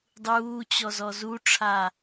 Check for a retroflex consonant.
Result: present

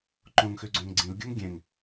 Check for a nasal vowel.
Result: present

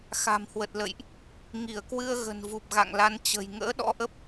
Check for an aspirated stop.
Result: absent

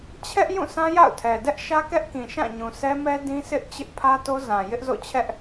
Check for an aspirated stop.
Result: present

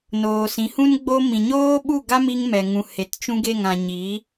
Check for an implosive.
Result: present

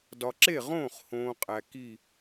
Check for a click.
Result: present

